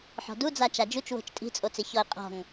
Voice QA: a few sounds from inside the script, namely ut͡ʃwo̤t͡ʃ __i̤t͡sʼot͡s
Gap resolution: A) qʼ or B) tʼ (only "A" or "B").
B